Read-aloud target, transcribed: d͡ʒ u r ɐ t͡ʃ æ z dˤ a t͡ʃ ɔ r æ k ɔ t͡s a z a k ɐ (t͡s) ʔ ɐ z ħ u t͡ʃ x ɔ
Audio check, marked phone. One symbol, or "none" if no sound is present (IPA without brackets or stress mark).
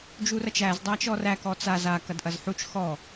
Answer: d